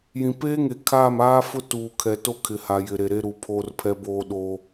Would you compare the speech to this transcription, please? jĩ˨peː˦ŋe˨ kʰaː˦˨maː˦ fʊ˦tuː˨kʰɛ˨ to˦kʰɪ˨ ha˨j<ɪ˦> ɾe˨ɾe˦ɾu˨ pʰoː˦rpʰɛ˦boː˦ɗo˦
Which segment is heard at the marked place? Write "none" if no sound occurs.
ɪ˨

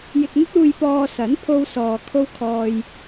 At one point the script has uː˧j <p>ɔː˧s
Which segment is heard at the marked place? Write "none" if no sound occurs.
p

